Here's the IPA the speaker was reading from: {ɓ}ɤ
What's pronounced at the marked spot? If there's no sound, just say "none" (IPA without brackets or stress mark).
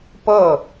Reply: p